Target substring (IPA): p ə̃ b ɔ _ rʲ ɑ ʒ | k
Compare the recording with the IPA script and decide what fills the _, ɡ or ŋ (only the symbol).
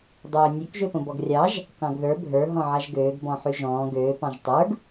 ɡ